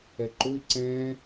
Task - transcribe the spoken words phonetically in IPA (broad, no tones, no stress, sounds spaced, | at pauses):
ɛ ǃ ʊ i̯ ǀ ɛ̃